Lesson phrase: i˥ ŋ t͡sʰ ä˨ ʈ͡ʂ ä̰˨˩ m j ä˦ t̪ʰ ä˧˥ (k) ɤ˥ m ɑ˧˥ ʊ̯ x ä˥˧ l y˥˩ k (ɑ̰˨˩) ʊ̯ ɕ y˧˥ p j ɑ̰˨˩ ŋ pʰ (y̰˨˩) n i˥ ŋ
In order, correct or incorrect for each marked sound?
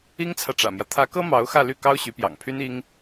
correct, incorrect, incorrect

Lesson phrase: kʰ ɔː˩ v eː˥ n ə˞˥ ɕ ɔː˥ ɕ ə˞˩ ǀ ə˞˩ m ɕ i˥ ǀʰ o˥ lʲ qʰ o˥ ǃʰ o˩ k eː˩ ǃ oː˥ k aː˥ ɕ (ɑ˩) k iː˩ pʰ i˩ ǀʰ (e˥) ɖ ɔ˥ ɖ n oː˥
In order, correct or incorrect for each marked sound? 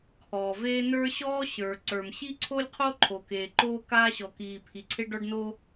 incorrect, correct

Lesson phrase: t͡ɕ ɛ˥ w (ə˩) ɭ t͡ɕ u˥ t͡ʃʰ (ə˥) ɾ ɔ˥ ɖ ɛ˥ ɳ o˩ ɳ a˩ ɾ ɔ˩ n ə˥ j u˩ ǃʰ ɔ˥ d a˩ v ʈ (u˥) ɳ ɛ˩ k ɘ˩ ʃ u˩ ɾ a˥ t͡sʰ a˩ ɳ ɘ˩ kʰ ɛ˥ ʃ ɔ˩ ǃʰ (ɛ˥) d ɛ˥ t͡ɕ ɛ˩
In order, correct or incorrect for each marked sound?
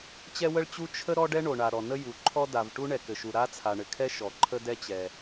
incorrect, correct, correct, incorrect

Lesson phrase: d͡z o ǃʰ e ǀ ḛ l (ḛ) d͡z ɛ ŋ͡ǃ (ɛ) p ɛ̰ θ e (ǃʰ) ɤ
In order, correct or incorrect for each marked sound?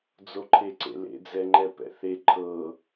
correct, correct, correct

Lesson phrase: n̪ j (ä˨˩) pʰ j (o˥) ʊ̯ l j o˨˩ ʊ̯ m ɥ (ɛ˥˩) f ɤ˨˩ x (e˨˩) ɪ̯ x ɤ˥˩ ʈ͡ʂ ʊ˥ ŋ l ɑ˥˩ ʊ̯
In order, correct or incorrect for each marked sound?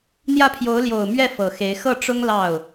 incorrect, incorrect, correct, incorrect

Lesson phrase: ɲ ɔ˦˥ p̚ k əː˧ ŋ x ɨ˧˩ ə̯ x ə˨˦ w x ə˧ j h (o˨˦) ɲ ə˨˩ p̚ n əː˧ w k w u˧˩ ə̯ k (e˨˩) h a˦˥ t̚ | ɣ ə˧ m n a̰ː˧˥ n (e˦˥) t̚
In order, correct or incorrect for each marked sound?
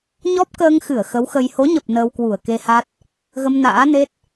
correct, incorrect, correct

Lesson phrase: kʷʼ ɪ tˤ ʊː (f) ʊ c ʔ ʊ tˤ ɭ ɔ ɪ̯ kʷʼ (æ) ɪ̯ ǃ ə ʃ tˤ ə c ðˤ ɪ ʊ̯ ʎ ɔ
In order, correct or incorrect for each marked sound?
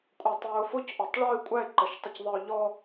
correct, correct

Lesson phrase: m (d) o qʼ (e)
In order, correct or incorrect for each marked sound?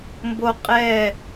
incorrect, incorrect

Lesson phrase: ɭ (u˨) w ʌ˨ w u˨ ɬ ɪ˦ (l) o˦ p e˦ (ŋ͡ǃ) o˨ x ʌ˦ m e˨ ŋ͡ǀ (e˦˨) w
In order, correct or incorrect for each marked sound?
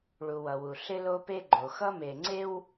correct, correct, incorrect, incorrect

